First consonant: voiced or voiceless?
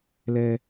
voiced